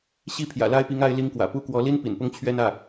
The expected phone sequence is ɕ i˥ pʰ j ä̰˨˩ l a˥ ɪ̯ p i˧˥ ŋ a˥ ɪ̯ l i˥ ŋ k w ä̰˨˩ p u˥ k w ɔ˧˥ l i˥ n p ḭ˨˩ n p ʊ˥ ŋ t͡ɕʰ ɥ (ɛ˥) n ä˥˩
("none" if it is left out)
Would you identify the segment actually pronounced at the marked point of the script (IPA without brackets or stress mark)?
ɛ˥